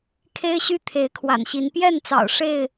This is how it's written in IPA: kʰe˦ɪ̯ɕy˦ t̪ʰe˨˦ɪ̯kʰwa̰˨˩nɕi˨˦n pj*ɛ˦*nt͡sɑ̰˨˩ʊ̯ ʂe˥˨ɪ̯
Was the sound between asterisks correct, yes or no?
no